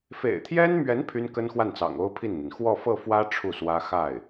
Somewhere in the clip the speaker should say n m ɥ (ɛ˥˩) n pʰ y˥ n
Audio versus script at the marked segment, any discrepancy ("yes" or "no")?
yes